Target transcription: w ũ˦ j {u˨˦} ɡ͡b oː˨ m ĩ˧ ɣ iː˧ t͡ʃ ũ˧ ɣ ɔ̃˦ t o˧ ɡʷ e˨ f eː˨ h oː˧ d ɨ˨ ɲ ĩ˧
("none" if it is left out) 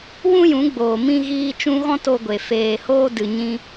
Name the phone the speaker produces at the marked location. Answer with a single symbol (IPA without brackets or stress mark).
ũ˨˦